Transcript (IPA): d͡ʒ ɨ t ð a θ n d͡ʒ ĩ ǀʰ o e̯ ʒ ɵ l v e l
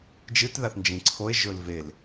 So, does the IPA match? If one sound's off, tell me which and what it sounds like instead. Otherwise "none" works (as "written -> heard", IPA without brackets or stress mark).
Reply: none